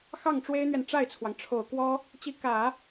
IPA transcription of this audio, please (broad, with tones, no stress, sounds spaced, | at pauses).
x ɑ˥˩ ŋ ʈ͡ʂ w e˥ ɪ̯ n̪ ɥ ɛ˨ n ʈ͡ʂ a˥˩ ɪ̯ t͡sʰ w ɑ˩ ŋ ʈ͡ʂʰ o˨˩ ʊ̯ k w ɔ˥ | t͡ɕ i˧˥ k ä˨˩˦